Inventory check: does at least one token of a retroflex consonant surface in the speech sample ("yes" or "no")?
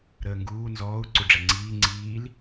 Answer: yes